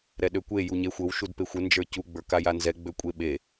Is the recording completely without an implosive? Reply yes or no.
no